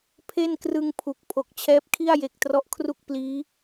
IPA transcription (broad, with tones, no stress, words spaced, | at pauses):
pʰe˥˩nkrɯ˧ŋpʰu˨˩k̚ pʰo˨˩k̚t͡ɕʰɛː˦˥p̚kʰi˥˩a̯ je˨˩k̚ trɔ˦˥ʔkʰru˥˩k̚ pliː˦˥